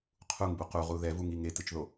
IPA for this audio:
qʰ u ŋ b u q u ʁ u ð ɛ v u ŋ i ŋ e t ɯ t͡ʃ ð o

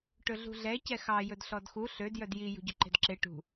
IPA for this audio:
ʈ ɵ ɮ ṳ ɮ ɛ c ɛ x ɑ j ɵ d ɬ ɔ d x u ɬ ø d j œ d j i j ṳ ɟ ø ǃ e̤ d ǁ e ʈ ṳ

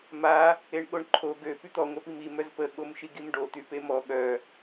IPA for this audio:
m a | e ɳ ɠ o ɳ ǃʰ o ɡ ø p y t̪ ɔ ŋʷ œ p i m i m œ z p ə ɠ o m ʃ i ɡ i m ɖ o t̪ y p e m ɔ ɠ œ

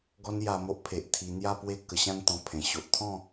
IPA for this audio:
ɡ ɔ˦ n j a˧ m o˦ ʔ pʰ e˨ ʔ t̪ʰ i˧ n̪ j a˥˧ p w e˥˧ k ə˧ ɕ ã˥˧ n t̪ ɔ̃˧ pʰ ẽ˨˩ ɕ o˨ ʔ t̪ʰ ɔ̃˥˧

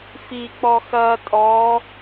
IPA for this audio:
f i k͡p ɔ x ɐ tʼ ɔ

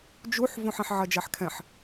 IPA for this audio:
d͡ʒ u ħ v õ ħ ɛ̃ ħ ʕ ɐ d͡ʒ a ħ kʰ ɛ̃ ħ

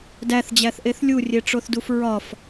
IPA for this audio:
d æ θ d͡ʑ æ θ ʔ e θ lʲ u rʲ e ʈ͡ʂ o θ d u f ɹ ɒ f

